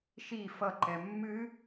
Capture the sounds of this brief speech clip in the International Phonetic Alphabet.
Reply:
ʃ i f ʌ ǃ ɛ mː ɨ

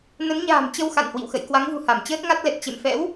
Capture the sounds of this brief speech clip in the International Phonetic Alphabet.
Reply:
n ə˨˦ n ɲ a̤ː˨˩ m t͡ɕ ə˧ w x a̰˧˨ n h w ḭ˧˨ w x ə̰˧˨ j k w a˨˦ ŋ v ṳ˨˩ h a˧˩ m t͡ɕ əː˦˥ t̚ ŋ a˦˥ t̚ l ɛ˨˩ t̚ t͡ɕ ḛ˧˨ m f ɛ̰˧˥ w

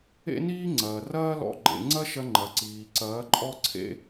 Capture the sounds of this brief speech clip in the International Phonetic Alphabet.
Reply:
ḛ˦ n iː˦ ŋ͡ǀ ɐː˨ r ɐː˦ l ɔ̰˧ ɡ͡ǃ ḛ˨ ŋ͡ǀ ɐ˦ ʃ ɐ˧ ŋ͡ǃ ɐ˨ ǀ iː˨ ǀ ɐː˨˦ ǃʼ ɔ˦ ǀʰ ḛ˦

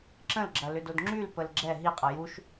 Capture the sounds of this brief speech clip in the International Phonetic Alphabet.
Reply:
ǁ ə̃ l ɡ͡ǁ ɐ l ʏ d o d ŋ͡ǁ y l p ə l ɡ͡ǁ ɛ ɦ i qʼ ɐ j u ʃ

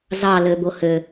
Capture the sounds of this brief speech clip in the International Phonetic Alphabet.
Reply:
z ɑ l ø b o h ø

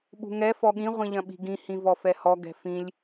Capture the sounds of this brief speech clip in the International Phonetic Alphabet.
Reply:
ɓ ṳ ŋ ɛ f ɔ ɠ ĩ ʁʷ ĩ ʎ ɐ̃ ɓ i̤ ɡ ĩ h ĩ v ɔ f ɛ h ɔ ɡ ɛ̤ f ĩ lʲ

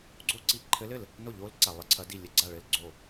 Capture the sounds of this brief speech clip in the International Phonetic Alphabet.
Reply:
ɡ͡ǀ o˥˩ ǀ i˥˩ ǃʰ ɘ˧˥ l ɘ˥˩ l | n o˥˩ ʎ o˧˥ l ǀ a˨ lˠ ɘ˧˥ ǀʰ ɐ˧˥ d i˥˩ lʲ ɘ˧˥ ɡ͡ǀ a˥˩ ɭ ɘ˥˩ l ɡ͡ǀ o˥˩

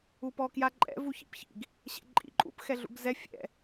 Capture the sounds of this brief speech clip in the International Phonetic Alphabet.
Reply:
u p ɔ k j a ǃʼ ɛ̰ v u ç ḭ p ç ḭ ɡ | ɕ ɛ̰ ǃʼ ḭ ǃʼ ṵ p x ɛ ɮ ṵ ɡ z ɛ fʲ ɛ̰

